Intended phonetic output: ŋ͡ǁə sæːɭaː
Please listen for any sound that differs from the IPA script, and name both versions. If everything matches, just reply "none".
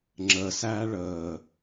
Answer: aː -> əː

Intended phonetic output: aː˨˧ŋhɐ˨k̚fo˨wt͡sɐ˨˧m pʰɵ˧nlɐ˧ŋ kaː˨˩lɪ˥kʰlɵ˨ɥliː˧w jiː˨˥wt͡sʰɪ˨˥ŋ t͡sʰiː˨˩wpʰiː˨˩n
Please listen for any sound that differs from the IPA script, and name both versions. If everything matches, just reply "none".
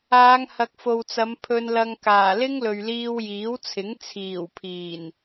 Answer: kʰ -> ŋ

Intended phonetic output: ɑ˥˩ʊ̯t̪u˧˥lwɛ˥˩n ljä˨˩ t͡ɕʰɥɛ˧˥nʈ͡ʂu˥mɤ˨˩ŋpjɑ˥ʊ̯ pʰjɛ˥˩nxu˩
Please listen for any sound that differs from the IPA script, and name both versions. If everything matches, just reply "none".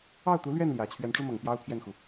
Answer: w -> ɥ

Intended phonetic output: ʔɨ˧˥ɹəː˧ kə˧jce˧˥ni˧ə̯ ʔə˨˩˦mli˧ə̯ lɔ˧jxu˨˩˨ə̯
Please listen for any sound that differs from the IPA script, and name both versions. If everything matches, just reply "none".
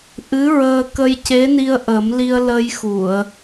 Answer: ɔ˧ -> ə˧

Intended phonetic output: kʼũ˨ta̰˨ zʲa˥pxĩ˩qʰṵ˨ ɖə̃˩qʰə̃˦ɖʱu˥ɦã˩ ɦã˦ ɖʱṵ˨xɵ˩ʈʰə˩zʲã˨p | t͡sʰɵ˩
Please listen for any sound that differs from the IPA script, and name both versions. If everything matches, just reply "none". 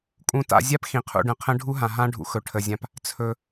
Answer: none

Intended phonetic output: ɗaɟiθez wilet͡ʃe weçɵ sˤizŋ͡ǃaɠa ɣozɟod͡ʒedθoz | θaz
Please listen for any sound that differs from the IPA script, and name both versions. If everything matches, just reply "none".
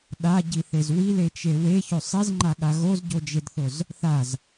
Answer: none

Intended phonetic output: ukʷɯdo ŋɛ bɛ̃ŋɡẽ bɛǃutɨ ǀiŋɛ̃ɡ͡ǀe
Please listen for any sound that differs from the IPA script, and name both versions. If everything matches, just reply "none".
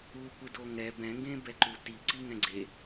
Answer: ɨ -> i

